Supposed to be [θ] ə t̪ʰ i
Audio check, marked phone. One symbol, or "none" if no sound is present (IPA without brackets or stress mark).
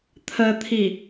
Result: t̪ʰ